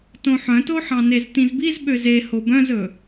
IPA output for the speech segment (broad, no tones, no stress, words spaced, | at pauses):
tõħœ̃toħɑ̃ neztĩzbiz ɓøze hobœ̃zɵ